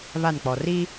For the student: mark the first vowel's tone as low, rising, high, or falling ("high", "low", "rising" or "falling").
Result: falling